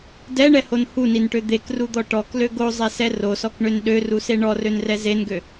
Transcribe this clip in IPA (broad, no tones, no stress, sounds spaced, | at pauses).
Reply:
d ɛ ɳ ɛ h o n h u n i n ʈ ø d̪ e k r u d̪ ɔ ʈ ɔ k l ø ɡ o zˤ e s ɛ r o s ɔ k ɳ ø n ɗ ø r u s e ɳ ɔ r ø n r ɛ z e n ɡ ø